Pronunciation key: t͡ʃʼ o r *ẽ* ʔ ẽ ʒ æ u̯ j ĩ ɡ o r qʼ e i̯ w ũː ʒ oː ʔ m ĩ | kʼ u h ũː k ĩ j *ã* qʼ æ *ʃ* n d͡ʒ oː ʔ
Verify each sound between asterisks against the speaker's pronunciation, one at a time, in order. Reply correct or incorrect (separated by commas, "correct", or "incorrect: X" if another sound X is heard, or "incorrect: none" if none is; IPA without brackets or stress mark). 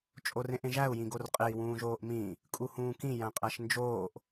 correct, incorrect: æ̃, correct